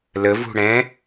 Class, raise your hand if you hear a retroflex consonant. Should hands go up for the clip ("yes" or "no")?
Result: yes